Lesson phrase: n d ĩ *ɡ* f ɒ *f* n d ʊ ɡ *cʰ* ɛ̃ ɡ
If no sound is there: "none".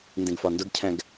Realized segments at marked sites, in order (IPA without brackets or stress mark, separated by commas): ɡ, none, cʰ